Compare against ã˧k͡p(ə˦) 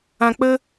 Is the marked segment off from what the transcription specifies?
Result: no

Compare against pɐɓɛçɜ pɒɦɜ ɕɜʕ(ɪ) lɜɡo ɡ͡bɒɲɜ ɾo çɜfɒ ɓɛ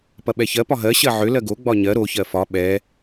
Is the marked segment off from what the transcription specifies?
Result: yes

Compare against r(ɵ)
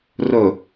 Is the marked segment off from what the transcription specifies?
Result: no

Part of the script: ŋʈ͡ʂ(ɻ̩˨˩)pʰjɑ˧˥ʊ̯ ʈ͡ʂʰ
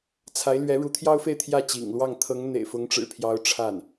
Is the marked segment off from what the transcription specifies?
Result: no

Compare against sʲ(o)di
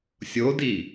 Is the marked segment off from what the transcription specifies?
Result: no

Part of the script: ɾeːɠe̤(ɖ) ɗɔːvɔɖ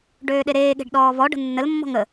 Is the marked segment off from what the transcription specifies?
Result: no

